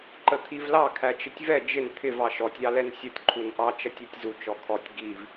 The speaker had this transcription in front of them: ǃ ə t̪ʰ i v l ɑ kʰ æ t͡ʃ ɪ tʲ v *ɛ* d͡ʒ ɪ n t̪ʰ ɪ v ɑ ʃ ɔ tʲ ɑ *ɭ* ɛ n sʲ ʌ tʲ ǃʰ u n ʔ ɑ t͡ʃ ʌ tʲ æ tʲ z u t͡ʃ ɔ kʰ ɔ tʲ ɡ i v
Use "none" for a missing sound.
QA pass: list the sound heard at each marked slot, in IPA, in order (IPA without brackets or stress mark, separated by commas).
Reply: ɛ, l